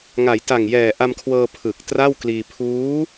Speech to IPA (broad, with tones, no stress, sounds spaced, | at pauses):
ŋ a˩˦ j t a˨˩ ŋ j ɛː˨˩ ʔ a˧ m kʰ w ɤː˧ pʰ ɯ˨˩ k̚ t r a˥˩ w k l iː˧ pʰ uː˦˥